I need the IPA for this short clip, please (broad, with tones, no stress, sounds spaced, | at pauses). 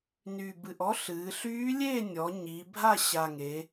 n y˨˩ b ɨ˨˩ ʔ ɔ˧˥ ɬ ɨː˩˧ ɬ yː˧˥ lʲ e˥˨ nʲ ɔ˩˧ ɲ iː˩˧ bʱ a˥˨ ɕ a˨˩ ŋ e˩˧